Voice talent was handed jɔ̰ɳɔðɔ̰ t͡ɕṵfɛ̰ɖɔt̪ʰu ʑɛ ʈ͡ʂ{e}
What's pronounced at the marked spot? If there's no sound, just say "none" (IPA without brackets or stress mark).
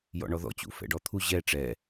ɛ